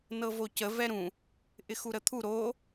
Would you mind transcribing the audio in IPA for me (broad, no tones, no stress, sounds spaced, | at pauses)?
n ɤ v o c ə v ɛ ɾ ũ | ʔ ɪ x u ɾ ə t̪ʰ u ɾ o